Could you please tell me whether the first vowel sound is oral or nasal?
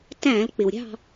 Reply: nasal